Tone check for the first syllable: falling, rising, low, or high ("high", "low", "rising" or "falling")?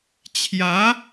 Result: rising